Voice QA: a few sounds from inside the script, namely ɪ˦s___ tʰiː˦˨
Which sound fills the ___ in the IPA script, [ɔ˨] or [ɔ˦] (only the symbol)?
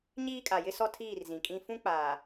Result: ɔ˦